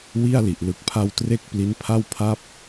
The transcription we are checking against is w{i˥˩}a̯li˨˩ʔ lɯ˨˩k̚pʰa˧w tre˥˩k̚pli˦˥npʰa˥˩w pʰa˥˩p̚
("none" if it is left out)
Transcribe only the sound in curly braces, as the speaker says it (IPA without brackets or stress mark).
i˥˩